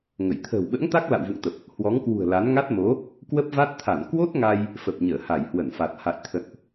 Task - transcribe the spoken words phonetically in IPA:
ŋ ə˧˩ j t̪ʰ ə̤ː˨˩ w ɓ ə̰ː˧˥ ŋ t̪ a˦˥ k̚ l a̰˧˨ w v ṵ˧˨ ŋ t̪ ə˨˩ p̚ | h w ɔ˨˦ ŋ k w ṳ˨˩ ə̯ l a˨˦ n ŋ a˦˥ t̚ m o˨˦ | k w ə˦˥ p̚ v a˦˥ t̚ t̪ʰ a˧˩ n k w o˦˥ t̚ ŋ a˧ j | f ə˨˩ p̚ ɲ əː˧˩ h a˧˩ j h w ə˧˩ n f a˨˩ t̚ h a̰˧˨ j t̪ʰ ə̰˧˨ n ʔ

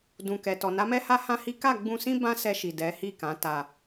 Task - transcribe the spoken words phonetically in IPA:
d ũ˨ k ɛ˨ t ɔ˨ n a˨˦ m ɛ˦ h a˦ h ã˦ h i˦ k a˦˨ ɡ͡b ũ˧ s ĩ˦ b ã˦ s ɛ˧ ʃ i˨ d ɛ˨˦ h i˦˨ k ã˨˦ t a˧

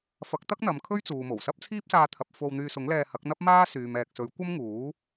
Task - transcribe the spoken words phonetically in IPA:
f ɐ˨˥ k̚ t̪ ɐ˥ k̚ n̪ ɐ˨ m kʰ ɵ˥ ɥ t͡s uː˨ m o˨˩ w s ɐ˥ p̚ t͡sʰ iː˥ p̚ s aː˧ t̪ʰ ɐ˨ p̚ f o˧ w n̪ yː˧ s ʊ˨˥ ŋ l ɛː˧ h ɐ˨˥ k̚ n̪ ɐ˥ p̚ m aː˥ s yː˨ m ɛː˨ k̚ s ɵ˨˥ ɥ kʷ ɐ˥ m ŋ uː˨˥

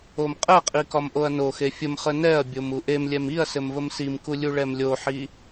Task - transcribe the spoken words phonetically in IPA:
o m qʼ ɛ qʼ i k ɒ m ʔ o ɐ̯ n o x e fʲ ə m χ ə n ɛ ɐ̯ bʲ o m u ʔ e m lʲ ɛ m i ɐ̯ s ɘ m v ə m s i m k u lʲ u ɭ ɛ m lʲ o ħ i

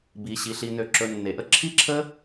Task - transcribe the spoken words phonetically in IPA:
b i˧ ɕ i˧ ɬ i˧ n ø˧ ǁ ɵ˧ nː e˨ ʔ ə˦ ǁʰ i˦ ǁʰ ə˦

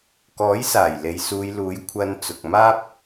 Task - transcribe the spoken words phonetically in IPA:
k ɔː˨˥ j s aː˨˩ j l e˨ j s uː˨˧ j l uː˨˥ j kʷʰ ɐ˨ n t͡s ʊ˨ k̚ m aː˥ p̚

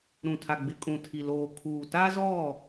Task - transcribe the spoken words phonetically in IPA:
ɾ ũ˨ tʰ a˨ ɡ͡b ɪ˨ kʼ ũ˨ tʰ i˨ l oː˨ kʰ uː˨ t a˦ z ɔ˦˨

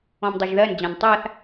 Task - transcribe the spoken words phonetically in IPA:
ɔ̃ m dˤ a ʒ ð ɜ n d͡ʑ ã n tˤ a θ

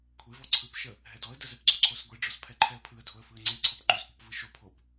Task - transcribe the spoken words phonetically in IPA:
kʷʰ e v ɔ ǀʰ ɯ p ʃ ə | ɦ ɛ d ɔ ə̯ d ə z ɛ p ɡ͡ǀ o ǀʰ o s ɡʷ e ɖ͡ʐ ɔ s pʰ ɛ ǃʰ ɛ ə̯ pʰ ɯ ə̯ dʱ o ə̯ f ɯ ə̯ ŋ͡ǀ e ǀʰ ɔ p ŋ͡ǃ o s kʷ ə p v ɯ ʃ o pʰ o p

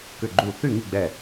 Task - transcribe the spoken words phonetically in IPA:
k ʏ˧˩ ɡ͡ǃ u˧˩ θ y˥˨ ŋ i˥˨ ɡ͡b ɛ˧˩

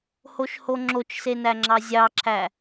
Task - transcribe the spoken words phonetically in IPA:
h o ʃ h o ŋ͡ǁ o t͡ʃ s e n æ ŋ͡ǁ ɑ zʲ ɑ ǁʰ æ

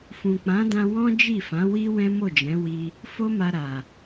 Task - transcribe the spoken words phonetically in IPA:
f ũ˨ k͡p ã˨˦ d ã˧ w ɔ̃˦ d͡ʒ i˦˨ f ã˨˦ w i˦ w ɛ̃˦ m o˦˨ d͡ʒ ɛ̃˨˦ w i˧ | f o˦ m a˧ ɾ a˨

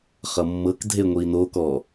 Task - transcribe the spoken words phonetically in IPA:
χ ʌ mː ɤ k dʱ e ŋʷ iː n oː k ɔ

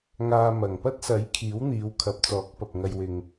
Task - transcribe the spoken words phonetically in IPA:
ŋ aː˧ m ɐ˨˩ ŋ p ɐ˥ t̚ s ɐ˨˥ j kʰ iː˨˥ w n̪ iː˨˧ w kʰ ɐ˨˥ p̚ t͡s ɔː˨˥ k̚ p ɐ˨ p̚ ŋ ɐ˧ j w ɪ˨ ŋ

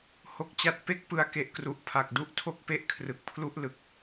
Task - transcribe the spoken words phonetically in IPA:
h o˥˩ k̚ t͡ɕ a˥˩ t̚ p e˥˩ k̚ p ɯ˧ a̯ k e˨˩ ʔ k r u˨˩ ʔ pʰ a˨˩ k̚ d u˥˩ ʔ tʰ o˥˩ k̚ p e˥˩ ʔ kʰ r ɯ˨˩ k̚ pʰ l u˥˩ ʔ l ɯ˨˩ k̚

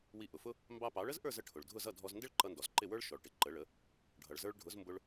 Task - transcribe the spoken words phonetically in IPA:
w i˧ ʔ ʊ˩ f ʊ˥ | m b ɑ˧ p ɑ˩˥ ɭ ə˥ z ʔ ə˞˥˩ z ə˧ ʈʰ ʊ˩ ɭ dʱ ʊ˥˩ z ʌ˥˩ dʱ ɔ˧ z n d ɪ˥ ɭ ǃ ʌ˧ n d ɔ˩ z ǃ ɪ˥˩ w ə˞˥ ɭ ʃ ɔ˩ ɭ ʈ ɪ˩ ǃ ə˩˥ ɭ ə˩˥ | ɖʱ ʌ˩ ɭ z ə˞˧ ɭ ɖʱ ʊ˩˥ z m b ʊ˧ ɭ

